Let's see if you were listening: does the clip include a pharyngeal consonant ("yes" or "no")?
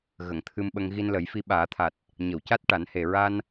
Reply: no